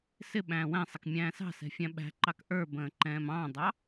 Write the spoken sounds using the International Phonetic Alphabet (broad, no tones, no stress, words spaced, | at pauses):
sɪ ɓæ̃ːwæ̃sˤɪk mʲæ̃ːsɑ̤sɛ̤ fʲæ̃ɓæ̤ǃɑk ʔə˞bə̃ː ǃɛ̃ːmɑ̃dˤɑ